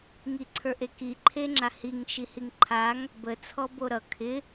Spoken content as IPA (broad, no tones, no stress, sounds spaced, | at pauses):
ŋ i ǀʰ ə˞ ʔ e k i ǃʰ e ŋ͡ǁ a h i ŋ ʃ i h i ŋ ǃʰ a ŋ | b ə t͡sʰ ɔ b o ɾ ʌ kʰ ɪ